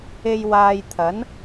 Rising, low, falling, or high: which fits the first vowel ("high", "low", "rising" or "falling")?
low